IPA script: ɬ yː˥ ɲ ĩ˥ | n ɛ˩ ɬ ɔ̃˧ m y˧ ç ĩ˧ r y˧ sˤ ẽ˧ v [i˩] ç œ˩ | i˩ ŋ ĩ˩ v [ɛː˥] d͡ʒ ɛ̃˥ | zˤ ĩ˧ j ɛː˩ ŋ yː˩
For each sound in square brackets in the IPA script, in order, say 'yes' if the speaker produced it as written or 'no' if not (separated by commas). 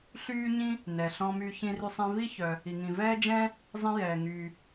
no, yes